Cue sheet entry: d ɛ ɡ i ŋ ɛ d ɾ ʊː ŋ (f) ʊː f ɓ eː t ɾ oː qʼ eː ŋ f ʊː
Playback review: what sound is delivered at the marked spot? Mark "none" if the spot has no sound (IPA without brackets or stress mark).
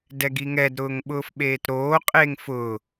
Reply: ɓ